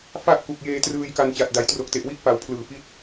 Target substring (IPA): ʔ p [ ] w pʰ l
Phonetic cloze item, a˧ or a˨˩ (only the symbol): a˨˩